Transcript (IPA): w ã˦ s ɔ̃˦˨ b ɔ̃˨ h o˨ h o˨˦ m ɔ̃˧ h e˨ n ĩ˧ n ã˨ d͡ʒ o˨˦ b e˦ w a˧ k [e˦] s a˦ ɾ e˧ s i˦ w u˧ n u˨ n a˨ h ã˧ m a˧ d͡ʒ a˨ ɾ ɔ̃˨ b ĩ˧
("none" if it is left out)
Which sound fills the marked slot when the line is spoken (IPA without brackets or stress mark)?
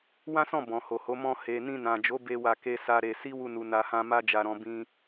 e˦